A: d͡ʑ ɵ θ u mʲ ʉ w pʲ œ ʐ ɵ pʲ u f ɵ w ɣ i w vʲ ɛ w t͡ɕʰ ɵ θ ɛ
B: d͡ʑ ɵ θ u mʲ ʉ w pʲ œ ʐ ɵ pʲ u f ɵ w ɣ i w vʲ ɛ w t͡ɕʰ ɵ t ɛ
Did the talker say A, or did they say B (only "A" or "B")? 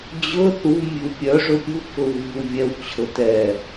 B